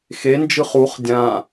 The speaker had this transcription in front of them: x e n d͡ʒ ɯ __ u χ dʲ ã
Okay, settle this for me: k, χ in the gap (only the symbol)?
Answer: χ